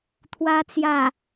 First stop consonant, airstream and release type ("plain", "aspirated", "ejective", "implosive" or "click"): aspirated